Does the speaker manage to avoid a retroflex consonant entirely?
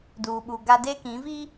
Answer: yes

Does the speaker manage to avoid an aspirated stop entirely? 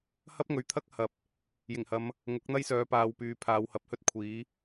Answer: no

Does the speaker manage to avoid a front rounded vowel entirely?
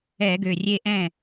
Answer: no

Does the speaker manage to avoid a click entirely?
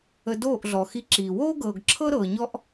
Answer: no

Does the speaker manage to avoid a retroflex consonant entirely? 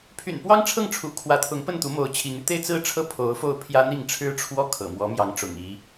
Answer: no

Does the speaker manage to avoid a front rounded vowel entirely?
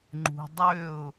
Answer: no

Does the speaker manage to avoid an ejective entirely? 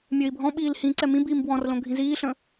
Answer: yes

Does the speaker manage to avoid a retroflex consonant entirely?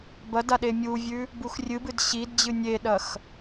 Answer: yes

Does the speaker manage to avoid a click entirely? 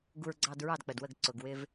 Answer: no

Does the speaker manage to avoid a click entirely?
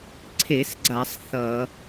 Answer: no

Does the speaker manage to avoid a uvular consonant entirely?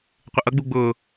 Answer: no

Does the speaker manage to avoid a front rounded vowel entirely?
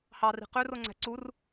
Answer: no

